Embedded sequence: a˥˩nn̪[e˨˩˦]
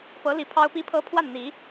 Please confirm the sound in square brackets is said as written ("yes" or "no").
no